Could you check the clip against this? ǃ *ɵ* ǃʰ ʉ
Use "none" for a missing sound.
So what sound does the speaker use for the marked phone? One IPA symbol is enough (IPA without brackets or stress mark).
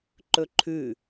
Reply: ɵ